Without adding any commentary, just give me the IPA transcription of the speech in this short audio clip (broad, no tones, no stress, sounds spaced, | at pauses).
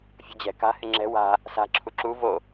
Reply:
fʲ ṳ d͡ʑ ɛ̤ k a̤ h ɪ ŋ͡ǁ ɛ̤ w a̤ | s a̤ ǁʰ u ǁ u v o